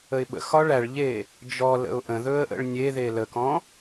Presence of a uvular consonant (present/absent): absent